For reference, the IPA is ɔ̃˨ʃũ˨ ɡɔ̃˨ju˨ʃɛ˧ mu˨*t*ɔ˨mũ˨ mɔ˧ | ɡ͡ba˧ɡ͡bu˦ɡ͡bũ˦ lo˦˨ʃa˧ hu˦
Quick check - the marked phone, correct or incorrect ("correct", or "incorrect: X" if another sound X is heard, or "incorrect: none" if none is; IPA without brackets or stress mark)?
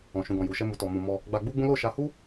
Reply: correct